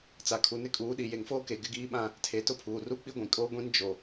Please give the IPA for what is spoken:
t͡s a˨ kʰ u˨ n ɪ˦ kʼ uː˨˦ ɗ i˨ j e˨ ŋ f oː˦ k e˨ ɡ ɪ˦ ɡ iː˦ ɓ ã˦˨ | tʰ e˨˦ t ʊ˦ pʰ uː˨ r u˦ k͡p i˦ ɡʷ ĩ˨ kʼ oː˦ ɡʷ ĩ˦ n d͡ʒ o˨

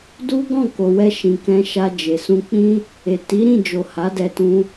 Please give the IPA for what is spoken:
d u˦ ɡ ɔ̃˦˨ k o˨ w ɛ˧ ʃ ĩ˨ k ɛ̃˧ ʃ a˧ d͡ʒ e˨ s ũ˧ k͡p ĩ˦ | e˨ t i˨˦ ɾ ĩ˦˨ d͡ʒ o˨ h a˨˦ d ɛ˧ t ũ˧

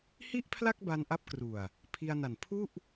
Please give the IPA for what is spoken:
h i˥˩ ʔ pʰ l a˥˩ k̚ b a˧ n ʔ a˦˥ p̚ k r u˨˩ a̯ | pʰ i˧ a̯ n a˨˩ n pʰ u˥˩ ʔ

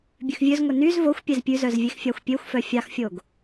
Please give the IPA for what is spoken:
bʲ ʉ x vʲ ɵ z ŋʷ e n y z v o xʷ pʲ ɛ z pʲ ʉ z œ z vʲ e x fʲ ɑ xʷ pʲ ø xʷ f œ fʲ ɑ x fʲ o ɡ

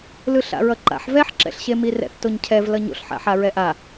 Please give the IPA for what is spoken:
l ɯ ɬ a̰ ɹ ʌ ǃ a̰ ħ v ɛ ħ ǁ ɛ̰ ɬ ɕ e m i r ɛ̰ θ t o ɲ cʰ ɛ v l ʌ ɲ o̰ ɬ ħ a̰ ħ a ɹ ɛ ʔ a

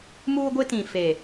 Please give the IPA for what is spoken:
m uː˦ ɡʷ ɪ˦ t ĩ˨ f e˨

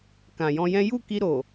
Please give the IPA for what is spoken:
k ã˨ j ɔ̃˧ j ɛ̃˦ j u˦˨ k i˧ ɾ o˨

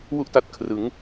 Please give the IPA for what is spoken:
w u˥˩ ʔ t a˥˩ t̚ kʰ r ɯ˦˥ ŋ

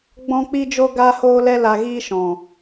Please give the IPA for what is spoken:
ɡ͡b ɔ̃˦ k͡p i˦ d͡ʒ o˦ ɡ aː˦ h oː˦ l ɛ˦ l a˧ ɣ iː˦ ʃ ɔ̃˨

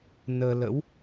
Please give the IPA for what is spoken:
n əː˧ l ə̰˧˥ w

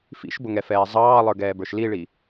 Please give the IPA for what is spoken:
f ḭ ʃ b ʊ ŋ ɛ f ɛː zˤ ɑː lˠ ə˞ ɡ ɛː b ə˞ ʃ l i ɭ i

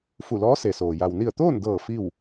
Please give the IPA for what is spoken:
f u˧˩ l ɔː˧˥ s e˩ s oː˩ j a˩ w n i˧˩ ə̯ t̪ oː˥˨ n d ɤː˧˩ f i˥˨ w

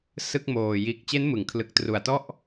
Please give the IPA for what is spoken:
s ɯ˥˩ k̚ m oː˨˩ j iː˨˩ k̚ t͡ɕ e˦˥ n m ɯ˩˦ ŋ kʰ l ɯ˨˩ k̚ t r u˨˩ a̯ t ɔ˥˩ ʔ

